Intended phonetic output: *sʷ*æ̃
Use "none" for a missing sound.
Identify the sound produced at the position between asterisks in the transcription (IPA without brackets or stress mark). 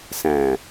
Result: s